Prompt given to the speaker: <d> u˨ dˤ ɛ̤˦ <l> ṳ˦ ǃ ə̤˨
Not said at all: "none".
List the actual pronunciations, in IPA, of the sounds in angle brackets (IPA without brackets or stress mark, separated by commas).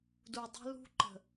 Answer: d, l